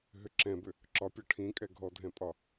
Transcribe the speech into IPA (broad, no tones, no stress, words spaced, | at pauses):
ɦʏǁɛ̃bʏ | ǁɒpʲɒ ʈʰĩkʼɛ ɡʱɔdʱɛ̃pʼɒ